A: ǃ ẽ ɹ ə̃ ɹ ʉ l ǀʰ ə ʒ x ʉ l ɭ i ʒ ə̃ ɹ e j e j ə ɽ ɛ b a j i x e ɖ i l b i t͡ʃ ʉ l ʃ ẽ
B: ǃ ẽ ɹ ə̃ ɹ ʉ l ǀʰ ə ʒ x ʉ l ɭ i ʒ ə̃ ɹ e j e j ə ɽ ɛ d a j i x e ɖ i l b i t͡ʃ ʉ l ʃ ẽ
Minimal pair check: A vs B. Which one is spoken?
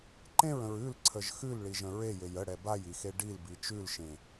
A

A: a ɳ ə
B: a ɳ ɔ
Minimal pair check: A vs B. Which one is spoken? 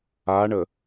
A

